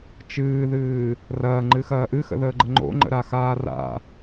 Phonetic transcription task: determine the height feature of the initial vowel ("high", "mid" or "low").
high